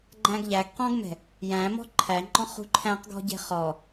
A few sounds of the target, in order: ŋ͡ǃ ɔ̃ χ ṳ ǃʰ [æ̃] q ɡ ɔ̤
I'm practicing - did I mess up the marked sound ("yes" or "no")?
no